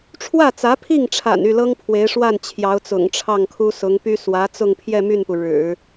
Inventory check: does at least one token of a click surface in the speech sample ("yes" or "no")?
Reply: no